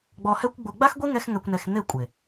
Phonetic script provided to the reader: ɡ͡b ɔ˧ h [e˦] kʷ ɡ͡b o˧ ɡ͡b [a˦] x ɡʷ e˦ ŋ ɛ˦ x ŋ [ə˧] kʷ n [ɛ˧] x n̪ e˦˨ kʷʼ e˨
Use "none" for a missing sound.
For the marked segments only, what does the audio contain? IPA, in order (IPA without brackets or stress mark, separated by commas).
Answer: ɛ˦, a˦, ɛ˧, ɛ˧